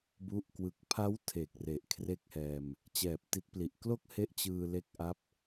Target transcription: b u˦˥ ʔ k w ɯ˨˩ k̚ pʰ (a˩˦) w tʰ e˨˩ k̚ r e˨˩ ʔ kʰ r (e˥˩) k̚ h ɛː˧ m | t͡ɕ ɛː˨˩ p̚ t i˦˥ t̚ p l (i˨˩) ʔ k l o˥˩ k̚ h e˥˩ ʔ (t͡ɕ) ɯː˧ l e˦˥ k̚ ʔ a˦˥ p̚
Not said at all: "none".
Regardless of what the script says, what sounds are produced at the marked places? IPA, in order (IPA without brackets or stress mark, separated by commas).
a˦˥, e˥˩, i˨˩, t͡ɕ